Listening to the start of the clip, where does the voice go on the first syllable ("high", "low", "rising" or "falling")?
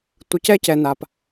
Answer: low